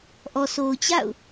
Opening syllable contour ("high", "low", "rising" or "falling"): low